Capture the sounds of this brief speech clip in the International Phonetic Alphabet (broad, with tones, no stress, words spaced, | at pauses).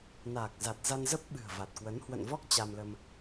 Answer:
naː˨˩k̚ za˨˩t̚za˧nzə˦˥p̚ ɓɨ̤˨˩ə̯va˨˩t̚kwə˨˦n hwə̰˧˨nvɔ˦˥k̚ t͡ɕa˧mlə˧m